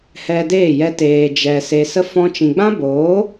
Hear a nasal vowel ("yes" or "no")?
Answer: yes